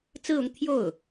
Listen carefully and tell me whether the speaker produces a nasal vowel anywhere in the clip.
no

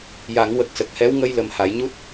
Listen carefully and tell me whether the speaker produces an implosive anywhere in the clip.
no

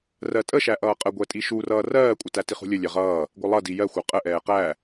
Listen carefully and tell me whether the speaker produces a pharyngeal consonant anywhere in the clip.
no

